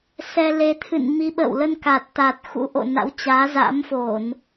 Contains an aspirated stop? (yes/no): yes